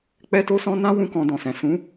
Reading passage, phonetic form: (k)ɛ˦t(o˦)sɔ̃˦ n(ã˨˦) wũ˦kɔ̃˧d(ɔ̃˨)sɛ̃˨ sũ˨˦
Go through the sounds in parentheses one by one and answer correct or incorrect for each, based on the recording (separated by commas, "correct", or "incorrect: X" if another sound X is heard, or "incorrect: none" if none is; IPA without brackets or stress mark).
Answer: incorrect: k͡p, correct, incorrect: ã˦, correct